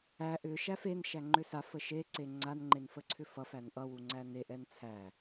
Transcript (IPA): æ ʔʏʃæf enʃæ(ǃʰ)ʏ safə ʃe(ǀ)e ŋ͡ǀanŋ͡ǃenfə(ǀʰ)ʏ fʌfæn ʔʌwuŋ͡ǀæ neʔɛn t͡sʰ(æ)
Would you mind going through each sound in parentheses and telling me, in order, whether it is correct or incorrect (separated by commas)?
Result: incorrect, correct, correct, correct